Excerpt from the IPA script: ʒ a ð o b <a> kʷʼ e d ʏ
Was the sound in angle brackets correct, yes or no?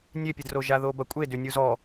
no